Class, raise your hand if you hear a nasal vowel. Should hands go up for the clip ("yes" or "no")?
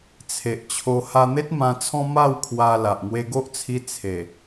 yes